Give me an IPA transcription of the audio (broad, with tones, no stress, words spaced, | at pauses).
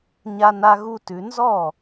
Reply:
ɲa˦ na˦ɣu˦tʉ˨˦ nzɔ˥˩